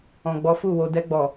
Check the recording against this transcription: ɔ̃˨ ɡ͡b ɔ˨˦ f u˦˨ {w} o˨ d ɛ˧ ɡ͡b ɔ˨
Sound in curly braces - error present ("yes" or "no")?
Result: no